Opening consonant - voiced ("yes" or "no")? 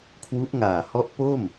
no